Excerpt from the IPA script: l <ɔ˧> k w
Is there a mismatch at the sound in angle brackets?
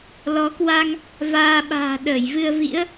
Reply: yes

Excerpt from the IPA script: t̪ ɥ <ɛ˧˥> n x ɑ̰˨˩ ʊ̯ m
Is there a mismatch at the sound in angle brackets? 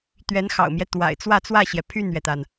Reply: no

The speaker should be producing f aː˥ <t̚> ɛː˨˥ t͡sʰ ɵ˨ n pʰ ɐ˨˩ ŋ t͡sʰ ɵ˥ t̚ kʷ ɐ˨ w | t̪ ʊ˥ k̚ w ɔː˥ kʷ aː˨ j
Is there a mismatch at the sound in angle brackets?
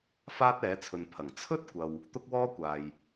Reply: no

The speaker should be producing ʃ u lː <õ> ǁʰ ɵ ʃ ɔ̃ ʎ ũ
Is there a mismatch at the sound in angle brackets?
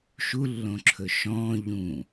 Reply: no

